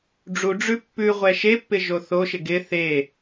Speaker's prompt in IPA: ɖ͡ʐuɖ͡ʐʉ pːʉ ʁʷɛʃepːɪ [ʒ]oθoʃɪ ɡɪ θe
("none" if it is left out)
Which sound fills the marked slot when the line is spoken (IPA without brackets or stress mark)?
ʒ